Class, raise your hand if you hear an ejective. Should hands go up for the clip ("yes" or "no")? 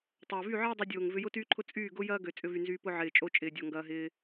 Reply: yes